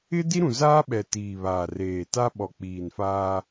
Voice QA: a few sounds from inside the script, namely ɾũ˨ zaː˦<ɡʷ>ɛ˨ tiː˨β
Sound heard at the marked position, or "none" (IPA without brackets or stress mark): ɓ